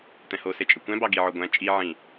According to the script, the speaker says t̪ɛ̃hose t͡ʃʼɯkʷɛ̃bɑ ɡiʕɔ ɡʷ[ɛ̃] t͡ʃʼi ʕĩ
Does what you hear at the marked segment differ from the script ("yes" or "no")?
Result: no